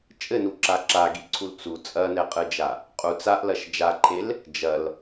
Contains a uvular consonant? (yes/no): yes